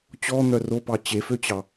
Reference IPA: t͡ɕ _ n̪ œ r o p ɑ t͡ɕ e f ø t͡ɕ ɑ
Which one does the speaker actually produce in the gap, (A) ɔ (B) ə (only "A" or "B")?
A